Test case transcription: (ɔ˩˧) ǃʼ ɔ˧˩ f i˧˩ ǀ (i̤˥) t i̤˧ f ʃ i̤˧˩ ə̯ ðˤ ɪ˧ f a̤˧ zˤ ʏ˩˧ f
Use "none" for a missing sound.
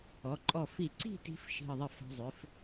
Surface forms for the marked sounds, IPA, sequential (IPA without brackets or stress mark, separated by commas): ɔ˩˧, i̤˥˧